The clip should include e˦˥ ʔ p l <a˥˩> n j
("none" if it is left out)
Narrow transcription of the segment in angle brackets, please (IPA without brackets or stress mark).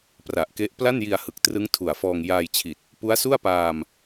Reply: a˥˩